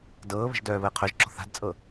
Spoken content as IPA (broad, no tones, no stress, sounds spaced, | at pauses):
d ɤː β ə̤ ʒ d œː β əː qʰ œ ʒ ǁ ɔ̤ θ a̤ d t͡sʼ ɤ